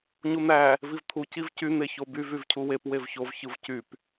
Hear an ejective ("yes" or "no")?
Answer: no